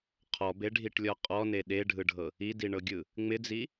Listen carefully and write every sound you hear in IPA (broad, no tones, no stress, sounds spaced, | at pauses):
qʰ ɔ b e ɖʱ i ʈ lʲ ɔ qʼ ɔ n e ɗ e ɖʱ ɯ ɖʱ ɤ | i d i ɳ ɤ ɡʲ ɯ | ŋ͡m ɪ d͡z i